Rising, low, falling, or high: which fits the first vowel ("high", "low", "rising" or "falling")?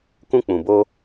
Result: high